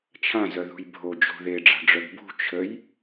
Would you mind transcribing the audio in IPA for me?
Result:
t͡ʃʰ ã z œ ð ṳ j bʱ o d͡ʒ o̤ ð e ɖ͡ʐ a̤ ɖ͡ʐ œ ɡ b ṳ t͡ʃʰ ə j

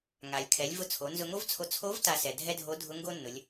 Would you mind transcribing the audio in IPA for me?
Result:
ŋ a˩ lʲ kʰ ɛ˩˧ lʲ v ʊ˧ t͡sʰ o˩˧ n z ʊ˧ ŋ o˥ v t͡sʰ o˧ t͡sʰ o˧˥ v t a˧ s ɛ˩ dʱ ɛ˥ dʱ o˧˥ dʱ ʊ˧˥ ŋ ɡ o˥ nː ʊ˩˧ lʲ

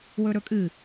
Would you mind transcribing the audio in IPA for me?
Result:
w ɵ ɾ ɵ kʼ ɨ

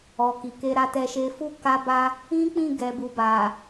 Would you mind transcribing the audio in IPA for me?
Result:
ɔ˨ k i˨ k e˧ ɾ a˧ t ɛ˧ ʃ e˧ f u˦ k a˧ b a˧ | ĩ˦ k͡p ĩ˦˨ ɡ ɛ˨ b u˨ b a˨

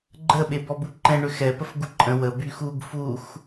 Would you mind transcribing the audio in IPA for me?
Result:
ɡ͡ǃ ə ɓ e b ɔ b u ǃ ɛ̃ ɳ ʏ x ɛ p ə f ɡ u ǃʼ ə̃ w ə b y x u ɡ f u x

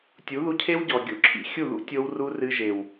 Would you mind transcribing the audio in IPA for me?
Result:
tʲ u˨˦ ð u˧ cʰ e˦ w ɟ ɔ˨ ɡʲ o̰˧ ǁʰ ḭ˨ xʲ u˦˨ ð ṵ˦ tʲ o˧ w r u˦ r ɨ˧ ʒ e˨ w

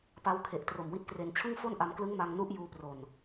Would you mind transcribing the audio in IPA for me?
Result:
p a˦˥ w kʰ e˨˩ ʔ t r o˨˩ m w i˦˥ t̚ k r e˧ n t͡ɕʰ ɯ˥˩ ŋ f o˥˩ n ʔ a˧ m k l ɯ˦˥ ŋ m a˧ ŋ n u˦˥ ʔ j uː˧ p r o˨˩ n

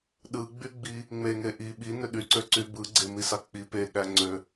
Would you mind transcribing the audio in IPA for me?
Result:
ɗ ɯ ɡ͡b y ɡ͡b i | ŋ͡m e ŋ e ʔ i ɓ i n ø ɗ y ǀ ø ǀ y b ɯ ɡ͡ǀ e m i s ɑ k͡p i p e ɠ æ ŋ͡ǀ ø

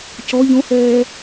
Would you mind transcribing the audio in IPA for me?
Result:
c ɔ ʎ õ h ɛː

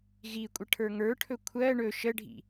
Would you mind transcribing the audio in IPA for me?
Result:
ɣ i kʷʼ ə ʈʰ ə˞ ŋ ə˞ ʈʰ ɵ kʷʰ ɜ ɳ ɵ ʃ ə ɖʱ ḭ

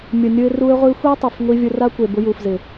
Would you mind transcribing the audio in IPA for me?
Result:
mʲ ʊ˨ nʲ ʊ˧ ɪ̯ r u˧ ɪ̯ ʁʷ i˧ xʷ ɛ˦ tˤ ʊ˨ f ŋʷ i˧ vʲ ʊ˧ r a˦ kʷ e˨ b ʊ˧ j u˨ f z ɪ˨

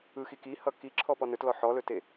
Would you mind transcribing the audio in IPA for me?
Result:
ɯ x i k i h ʌ k i ǁʰ ɔ p ɔ n ɵ t l ɔ ħ ɔ l ɵ t e

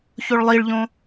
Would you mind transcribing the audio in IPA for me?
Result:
ç o ɭ lˠ i ɭ ʎ õ

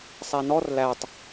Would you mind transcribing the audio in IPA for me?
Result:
sˤ æ n ɔ r l æ tˤ

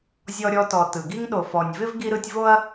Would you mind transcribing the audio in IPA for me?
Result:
zʲ ɔ˨ ɾʲ ɔ˨ t ɔ˩ t ɯ˩ ɡ i˥ ŋ ɗ o˨ f ɔ˨ nʲ v ɪ˥ v ɡ i˦ ɾ ɯ˦ tʲ v o˥ ɐ̯

